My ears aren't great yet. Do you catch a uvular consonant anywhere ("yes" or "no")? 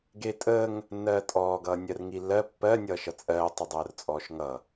no